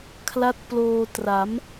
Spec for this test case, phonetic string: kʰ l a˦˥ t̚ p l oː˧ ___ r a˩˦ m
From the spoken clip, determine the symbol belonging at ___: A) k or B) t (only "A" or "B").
B